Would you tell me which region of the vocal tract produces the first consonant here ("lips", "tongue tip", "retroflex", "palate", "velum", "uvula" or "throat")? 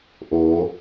throat